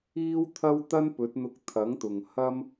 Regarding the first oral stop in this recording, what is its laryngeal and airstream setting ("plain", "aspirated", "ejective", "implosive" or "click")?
aspirated